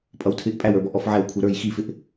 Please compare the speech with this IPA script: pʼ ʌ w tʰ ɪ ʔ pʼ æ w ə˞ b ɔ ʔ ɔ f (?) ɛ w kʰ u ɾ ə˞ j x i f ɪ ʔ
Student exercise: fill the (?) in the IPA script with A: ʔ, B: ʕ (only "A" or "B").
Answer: B